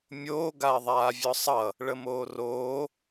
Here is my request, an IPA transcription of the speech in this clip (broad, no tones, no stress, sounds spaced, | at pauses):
mʲ oː ɡ a ɐ̯ ðˤ aː vʲ ɔ sˤ ʌ | ɭ ə m oː r oː